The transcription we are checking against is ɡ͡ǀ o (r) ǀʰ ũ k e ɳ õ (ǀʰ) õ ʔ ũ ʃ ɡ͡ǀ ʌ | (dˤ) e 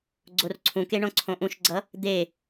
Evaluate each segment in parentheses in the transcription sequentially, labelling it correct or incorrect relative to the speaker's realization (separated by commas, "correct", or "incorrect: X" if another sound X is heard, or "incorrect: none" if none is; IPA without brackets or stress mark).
correct, correct, incorrect: d̪